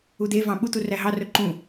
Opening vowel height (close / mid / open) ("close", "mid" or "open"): close